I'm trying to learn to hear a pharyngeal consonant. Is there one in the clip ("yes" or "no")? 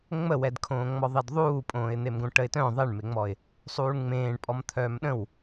no